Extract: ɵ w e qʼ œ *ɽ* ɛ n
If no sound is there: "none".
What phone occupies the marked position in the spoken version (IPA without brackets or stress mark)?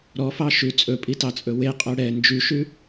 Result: ɽ